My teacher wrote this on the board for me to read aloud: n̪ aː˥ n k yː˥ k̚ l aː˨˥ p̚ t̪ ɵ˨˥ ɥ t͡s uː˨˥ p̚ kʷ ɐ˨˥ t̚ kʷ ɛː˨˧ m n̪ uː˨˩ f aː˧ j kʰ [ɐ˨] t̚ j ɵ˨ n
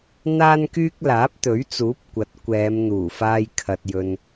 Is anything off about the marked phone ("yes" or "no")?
no